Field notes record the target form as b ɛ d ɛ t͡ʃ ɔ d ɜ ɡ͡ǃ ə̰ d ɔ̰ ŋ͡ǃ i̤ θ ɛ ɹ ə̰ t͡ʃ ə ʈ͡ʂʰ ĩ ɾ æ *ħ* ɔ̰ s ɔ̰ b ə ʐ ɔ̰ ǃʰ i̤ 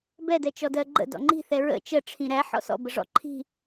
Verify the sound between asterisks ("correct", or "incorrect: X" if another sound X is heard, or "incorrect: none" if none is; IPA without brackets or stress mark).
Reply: correct